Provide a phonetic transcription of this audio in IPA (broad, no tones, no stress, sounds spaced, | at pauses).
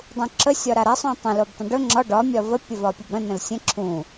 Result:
dˤ ũ ǁ ə sʲ ɒ ɾ a ɾ a sˤ ũ tˤ ə̃ l o b tˤ ə̃ ɖ ɵ ŋ͡ǁ ɒ ɖ ɒ mʲ ɒ v ə pʲ ə v ɒ pʲ ə b ɾ ə̃ n ə̃ l sʲ ə̃ ǁʰ ũ